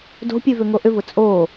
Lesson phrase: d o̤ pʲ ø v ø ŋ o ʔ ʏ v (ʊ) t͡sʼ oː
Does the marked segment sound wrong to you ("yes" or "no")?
no